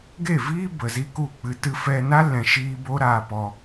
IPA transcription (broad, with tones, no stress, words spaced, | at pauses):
ɡe˦˨viː˦ bə˨zi˦ku˦˨k͡pɨ˧ tɨ˧fɛ˧ na˦lɛ̃˨ʃiː˧ bo˦ɾaː˧ pɔ˧